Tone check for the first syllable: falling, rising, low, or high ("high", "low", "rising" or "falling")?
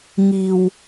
low